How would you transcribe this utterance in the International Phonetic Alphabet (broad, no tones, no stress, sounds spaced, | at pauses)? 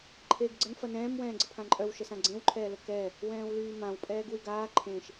ǃʰ eː ɡ ɡ͡ǀ ə n f ɐ n ɛ̃ː m w ɛ̃ː ɡ͡ǀ ə pʰ ã ǃʼ œ w ʃ ə s ã ɡ͡ǀ ẽ w ǃʰ ɛː l ə k ɛː | w ɛ̃ː w l yː m ã w pʼ ɛː ɡ w y ɡ aː ǃʰ ẽ ʃ